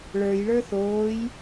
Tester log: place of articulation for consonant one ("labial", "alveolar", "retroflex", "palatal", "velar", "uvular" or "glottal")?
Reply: retroflex